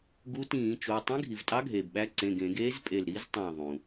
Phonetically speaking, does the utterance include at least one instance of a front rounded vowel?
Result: no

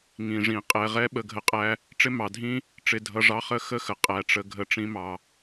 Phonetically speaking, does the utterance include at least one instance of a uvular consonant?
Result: yes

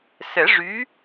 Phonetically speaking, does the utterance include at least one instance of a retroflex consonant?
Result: yes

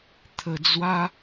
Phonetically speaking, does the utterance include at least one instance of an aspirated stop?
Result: yes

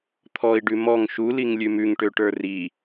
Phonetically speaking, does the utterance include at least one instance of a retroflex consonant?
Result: yes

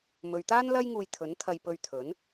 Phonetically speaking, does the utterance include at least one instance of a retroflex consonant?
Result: no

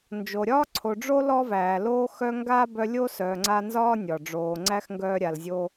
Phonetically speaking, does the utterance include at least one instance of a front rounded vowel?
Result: yes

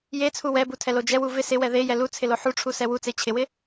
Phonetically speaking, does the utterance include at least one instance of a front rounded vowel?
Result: no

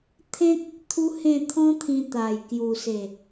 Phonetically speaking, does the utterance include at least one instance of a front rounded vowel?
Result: no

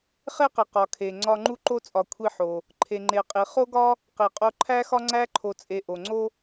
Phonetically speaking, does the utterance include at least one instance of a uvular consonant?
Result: yes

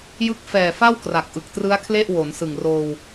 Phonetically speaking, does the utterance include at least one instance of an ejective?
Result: no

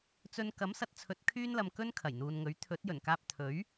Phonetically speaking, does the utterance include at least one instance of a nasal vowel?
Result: no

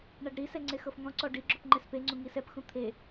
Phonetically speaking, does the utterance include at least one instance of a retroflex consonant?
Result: yes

